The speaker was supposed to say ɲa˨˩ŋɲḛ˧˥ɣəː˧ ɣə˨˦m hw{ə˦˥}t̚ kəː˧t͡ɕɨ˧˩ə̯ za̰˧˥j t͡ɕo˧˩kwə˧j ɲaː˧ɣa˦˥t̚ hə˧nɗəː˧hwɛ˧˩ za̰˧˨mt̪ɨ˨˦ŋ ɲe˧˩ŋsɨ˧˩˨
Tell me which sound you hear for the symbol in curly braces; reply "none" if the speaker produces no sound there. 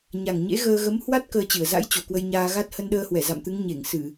a˦˥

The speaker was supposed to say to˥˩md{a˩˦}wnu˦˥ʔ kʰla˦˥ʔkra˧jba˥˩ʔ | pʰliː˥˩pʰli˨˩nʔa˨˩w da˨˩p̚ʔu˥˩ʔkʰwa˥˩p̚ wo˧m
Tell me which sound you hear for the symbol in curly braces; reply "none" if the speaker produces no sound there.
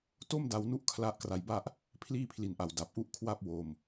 a˧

